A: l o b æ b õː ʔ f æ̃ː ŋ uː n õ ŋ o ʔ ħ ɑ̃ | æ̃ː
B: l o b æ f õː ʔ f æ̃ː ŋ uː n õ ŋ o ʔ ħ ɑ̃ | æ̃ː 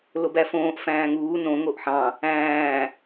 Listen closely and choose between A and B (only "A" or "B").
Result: B